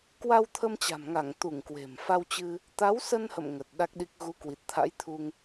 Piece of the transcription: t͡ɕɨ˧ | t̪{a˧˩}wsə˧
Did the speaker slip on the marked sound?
yes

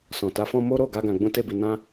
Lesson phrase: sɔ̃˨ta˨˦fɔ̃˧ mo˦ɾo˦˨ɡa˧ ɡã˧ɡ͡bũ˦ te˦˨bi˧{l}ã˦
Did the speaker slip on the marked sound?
yes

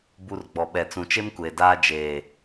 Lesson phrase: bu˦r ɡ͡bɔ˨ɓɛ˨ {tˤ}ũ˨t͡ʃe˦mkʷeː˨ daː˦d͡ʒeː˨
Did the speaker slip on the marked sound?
yes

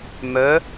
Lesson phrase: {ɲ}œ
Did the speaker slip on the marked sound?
yes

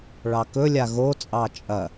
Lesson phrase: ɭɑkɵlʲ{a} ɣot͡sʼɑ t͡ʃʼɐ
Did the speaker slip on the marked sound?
no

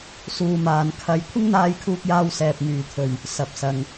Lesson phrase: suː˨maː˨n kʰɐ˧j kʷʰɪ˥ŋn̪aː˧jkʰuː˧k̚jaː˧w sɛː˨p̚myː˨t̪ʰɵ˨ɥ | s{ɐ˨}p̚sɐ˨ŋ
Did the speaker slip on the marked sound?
no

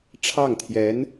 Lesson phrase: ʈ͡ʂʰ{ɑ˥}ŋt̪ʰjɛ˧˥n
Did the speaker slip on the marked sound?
yes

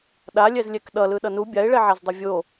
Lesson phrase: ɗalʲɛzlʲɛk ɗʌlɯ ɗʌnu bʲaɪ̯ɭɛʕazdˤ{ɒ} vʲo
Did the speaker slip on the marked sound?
yes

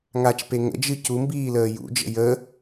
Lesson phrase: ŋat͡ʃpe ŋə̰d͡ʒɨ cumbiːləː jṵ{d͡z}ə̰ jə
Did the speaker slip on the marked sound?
yes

